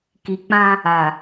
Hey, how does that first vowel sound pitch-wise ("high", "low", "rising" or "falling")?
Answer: low